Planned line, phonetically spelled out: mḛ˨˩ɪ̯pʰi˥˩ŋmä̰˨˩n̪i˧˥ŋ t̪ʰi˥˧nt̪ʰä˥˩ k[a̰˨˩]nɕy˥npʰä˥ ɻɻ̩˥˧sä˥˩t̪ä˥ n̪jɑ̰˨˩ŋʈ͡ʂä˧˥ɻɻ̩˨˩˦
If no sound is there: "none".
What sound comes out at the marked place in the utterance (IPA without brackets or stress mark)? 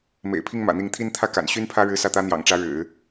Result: a̰˨˩